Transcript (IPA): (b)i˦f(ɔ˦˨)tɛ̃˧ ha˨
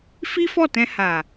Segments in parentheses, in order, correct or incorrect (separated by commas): incorrect, correct